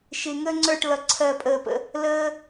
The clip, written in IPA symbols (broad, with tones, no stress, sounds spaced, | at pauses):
ʃ ɪ˥ ŋ əː˥ ŋ͡ǀ ə˞˥˧ ʈ l ʌ˧ ǀʰ ɜ˥˧ pʼ əː˧ p ə̰˥˧ | l əː˥